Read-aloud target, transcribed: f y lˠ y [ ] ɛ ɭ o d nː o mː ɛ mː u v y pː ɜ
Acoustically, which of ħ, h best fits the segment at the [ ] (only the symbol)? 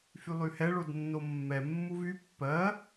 h